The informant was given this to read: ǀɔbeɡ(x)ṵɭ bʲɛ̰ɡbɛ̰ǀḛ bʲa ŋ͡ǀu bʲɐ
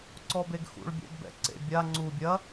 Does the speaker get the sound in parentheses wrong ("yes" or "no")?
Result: no